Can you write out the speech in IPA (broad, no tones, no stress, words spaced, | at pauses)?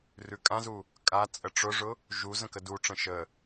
rʉkʼãzu | kʼa t͡sʼəʈ͡ʂʊʐʊ | ʒu zə̃kəduʈ͡ʂə̃ ʃə